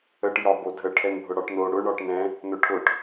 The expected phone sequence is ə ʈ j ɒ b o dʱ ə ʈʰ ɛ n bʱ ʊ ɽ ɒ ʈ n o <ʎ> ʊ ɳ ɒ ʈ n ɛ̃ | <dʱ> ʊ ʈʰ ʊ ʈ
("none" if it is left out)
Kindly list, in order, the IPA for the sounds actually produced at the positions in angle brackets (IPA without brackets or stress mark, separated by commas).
ɽ, n